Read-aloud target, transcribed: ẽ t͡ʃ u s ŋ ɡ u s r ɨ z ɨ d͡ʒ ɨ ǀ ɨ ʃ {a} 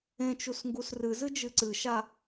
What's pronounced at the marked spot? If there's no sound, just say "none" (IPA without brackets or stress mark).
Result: a